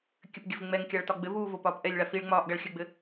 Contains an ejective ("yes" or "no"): no